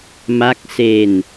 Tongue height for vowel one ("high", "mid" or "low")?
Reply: low